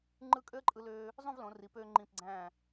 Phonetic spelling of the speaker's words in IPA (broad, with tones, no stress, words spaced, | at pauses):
ŋ͡ǃɯ˥˧ kʼø˥ə̯ǃʼɯ˧løː˧ | zˤũ˥˧vlõ˩˧ri˩˧pøː˧ ŋ͡ǃĩ˧˩pɡ͡ǀæ̃˧˩